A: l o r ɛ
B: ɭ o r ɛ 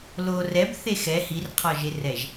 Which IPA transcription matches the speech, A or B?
A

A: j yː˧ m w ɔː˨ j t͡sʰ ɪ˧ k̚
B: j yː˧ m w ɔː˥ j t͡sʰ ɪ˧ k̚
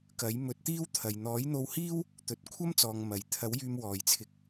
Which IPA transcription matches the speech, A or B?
A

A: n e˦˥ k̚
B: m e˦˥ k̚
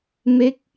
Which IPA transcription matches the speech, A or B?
B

